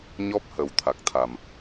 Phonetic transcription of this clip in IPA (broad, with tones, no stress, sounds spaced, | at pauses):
ɲ ɔ˦˥ p̚ h ə˨˩ w t̪ʰ a˨˩ k̚ t̪ʰ a˨˩ m